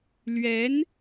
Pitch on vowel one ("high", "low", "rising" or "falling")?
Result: rising